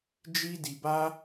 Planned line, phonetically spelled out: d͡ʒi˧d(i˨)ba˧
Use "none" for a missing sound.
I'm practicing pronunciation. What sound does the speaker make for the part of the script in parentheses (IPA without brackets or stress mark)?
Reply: i˨